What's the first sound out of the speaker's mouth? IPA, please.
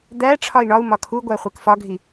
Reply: d̪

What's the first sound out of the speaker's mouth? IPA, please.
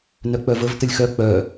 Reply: n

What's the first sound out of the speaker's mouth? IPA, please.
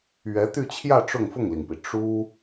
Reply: ɥ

